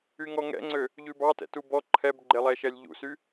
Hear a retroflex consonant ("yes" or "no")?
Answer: no